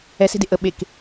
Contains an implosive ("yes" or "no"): yes